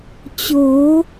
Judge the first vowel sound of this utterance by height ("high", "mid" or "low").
mid